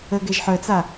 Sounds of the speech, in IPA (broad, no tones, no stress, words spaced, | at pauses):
əɡɛʒ ħœt͡sa